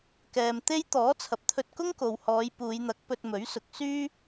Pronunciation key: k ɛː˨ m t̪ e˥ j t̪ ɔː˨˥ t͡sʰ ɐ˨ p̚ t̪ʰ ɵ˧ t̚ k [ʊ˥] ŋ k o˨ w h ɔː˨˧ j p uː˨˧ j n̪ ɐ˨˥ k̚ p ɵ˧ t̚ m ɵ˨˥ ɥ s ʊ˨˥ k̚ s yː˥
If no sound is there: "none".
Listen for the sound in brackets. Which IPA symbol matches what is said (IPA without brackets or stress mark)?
ʊ˥